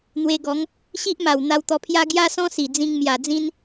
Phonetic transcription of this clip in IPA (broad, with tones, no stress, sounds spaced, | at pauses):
n̪ w e˧ ɡ ɔ˨˦ ŋ | ɕ i˦ ʔ m a˨˩ w n̪ a˧ w t̪ ɔ˧ pʰ j a˦ ɡ j a˦ s ɔ̃˦ s i˨˩ d͡z ĩ˧ ŋ m j a˨˩ d͡z ĩ˦ n